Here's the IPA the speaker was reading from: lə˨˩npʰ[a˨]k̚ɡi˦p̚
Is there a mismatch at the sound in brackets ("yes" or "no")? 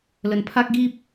yes